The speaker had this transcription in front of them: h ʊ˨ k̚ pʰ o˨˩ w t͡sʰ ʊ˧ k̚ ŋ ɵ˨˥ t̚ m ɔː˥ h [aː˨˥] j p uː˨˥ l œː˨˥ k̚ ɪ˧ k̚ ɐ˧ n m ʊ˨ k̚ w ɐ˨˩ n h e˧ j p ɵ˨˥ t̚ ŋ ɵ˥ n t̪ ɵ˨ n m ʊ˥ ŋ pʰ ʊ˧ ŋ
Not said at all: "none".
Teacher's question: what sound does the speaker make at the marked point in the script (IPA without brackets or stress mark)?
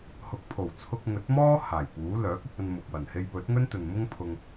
aː˨˩